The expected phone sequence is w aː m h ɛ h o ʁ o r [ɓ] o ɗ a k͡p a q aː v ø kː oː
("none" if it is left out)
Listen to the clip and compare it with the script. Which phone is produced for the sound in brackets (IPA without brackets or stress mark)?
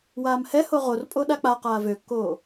pʼ